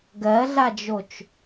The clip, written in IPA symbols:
ɡɜɮad͡ʒot͡ʃ

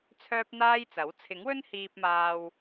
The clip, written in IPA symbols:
t͡sʰœː˥p̚n̪aː˥jt͡sɐ˨˥w t͡sʰɪ˨˥ŋwɵ˥nhiː˧p̚maː˧w

